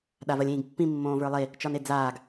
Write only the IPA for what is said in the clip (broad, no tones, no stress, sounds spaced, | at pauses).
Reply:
ɗ a v ɜ lʲ ĩː ɡ pː ĩ mː õː v ə˞ lˠ e | t͡ʃ ɒ n e d͡z aː ɡ